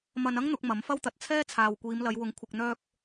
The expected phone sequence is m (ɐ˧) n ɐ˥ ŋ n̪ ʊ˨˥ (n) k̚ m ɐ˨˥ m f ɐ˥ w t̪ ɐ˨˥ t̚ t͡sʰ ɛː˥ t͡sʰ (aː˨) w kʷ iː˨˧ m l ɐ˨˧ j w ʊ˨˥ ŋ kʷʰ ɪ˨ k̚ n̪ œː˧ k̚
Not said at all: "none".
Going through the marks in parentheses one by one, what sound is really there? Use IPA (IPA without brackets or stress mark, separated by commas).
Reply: ɐ˧, none, aː˨